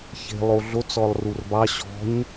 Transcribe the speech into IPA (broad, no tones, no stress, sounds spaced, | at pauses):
ç e̤ lˠ o ɮ o t͡s ɔ lˠ r u r b ɑ ɕ ɔ̤ ɲ